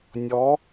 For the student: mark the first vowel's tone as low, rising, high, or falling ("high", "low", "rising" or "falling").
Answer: rising